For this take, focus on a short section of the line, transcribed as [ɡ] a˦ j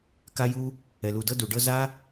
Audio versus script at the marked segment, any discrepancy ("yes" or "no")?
yes